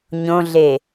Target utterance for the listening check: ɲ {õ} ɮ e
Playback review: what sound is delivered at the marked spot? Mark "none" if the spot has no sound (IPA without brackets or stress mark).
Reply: õ